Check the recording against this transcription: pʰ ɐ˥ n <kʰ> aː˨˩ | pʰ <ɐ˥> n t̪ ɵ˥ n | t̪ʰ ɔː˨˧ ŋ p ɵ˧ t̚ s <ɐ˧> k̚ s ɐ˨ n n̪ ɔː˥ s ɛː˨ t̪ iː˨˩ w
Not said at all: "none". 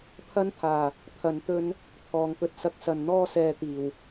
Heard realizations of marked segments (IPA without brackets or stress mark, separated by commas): t̪ʰ, ɐ˧, ɐ˧